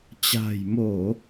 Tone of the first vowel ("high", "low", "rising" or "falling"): low